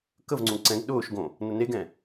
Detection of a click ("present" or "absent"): present